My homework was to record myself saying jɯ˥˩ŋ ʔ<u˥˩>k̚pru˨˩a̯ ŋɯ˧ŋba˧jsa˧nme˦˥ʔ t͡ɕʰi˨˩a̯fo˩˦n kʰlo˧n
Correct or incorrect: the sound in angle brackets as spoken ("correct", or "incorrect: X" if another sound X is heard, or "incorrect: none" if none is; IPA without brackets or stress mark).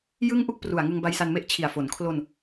correct